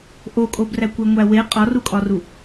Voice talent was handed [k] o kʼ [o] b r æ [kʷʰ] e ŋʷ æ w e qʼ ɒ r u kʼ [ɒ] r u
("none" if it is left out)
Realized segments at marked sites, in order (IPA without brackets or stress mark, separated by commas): ʔ, o, kʷ, ɒ